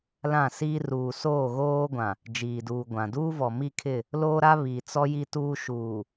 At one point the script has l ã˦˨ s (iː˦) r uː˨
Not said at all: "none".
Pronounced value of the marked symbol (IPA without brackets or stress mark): iː˦